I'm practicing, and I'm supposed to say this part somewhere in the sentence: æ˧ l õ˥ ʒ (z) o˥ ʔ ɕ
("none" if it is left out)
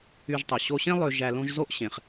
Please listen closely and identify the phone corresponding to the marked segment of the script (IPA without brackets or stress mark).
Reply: z